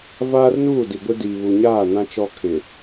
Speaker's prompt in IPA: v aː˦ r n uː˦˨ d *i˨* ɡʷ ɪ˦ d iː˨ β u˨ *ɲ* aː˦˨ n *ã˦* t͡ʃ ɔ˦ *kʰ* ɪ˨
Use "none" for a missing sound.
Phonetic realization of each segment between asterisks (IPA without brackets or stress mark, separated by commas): i˨, ɲ, ã˦, kʰ